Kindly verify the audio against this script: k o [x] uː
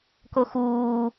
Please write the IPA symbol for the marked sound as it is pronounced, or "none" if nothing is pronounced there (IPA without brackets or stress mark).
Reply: x